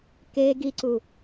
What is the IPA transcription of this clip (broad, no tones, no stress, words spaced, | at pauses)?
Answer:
ke ɡiǀu